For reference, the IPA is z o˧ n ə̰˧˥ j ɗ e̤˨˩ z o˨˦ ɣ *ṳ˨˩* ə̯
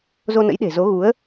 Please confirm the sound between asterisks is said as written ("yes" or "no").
no